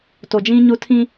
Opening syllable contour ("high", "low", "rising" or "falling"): low